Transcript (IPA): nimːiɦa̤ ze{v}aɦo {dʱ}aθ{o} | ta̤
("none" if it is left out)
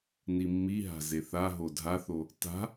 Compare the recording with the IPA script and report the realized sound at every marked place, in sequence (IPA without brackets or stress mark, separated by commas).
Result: θ, dʱ, o